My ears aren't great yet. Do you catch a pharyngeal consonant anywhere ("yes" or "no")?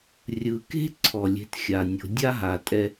no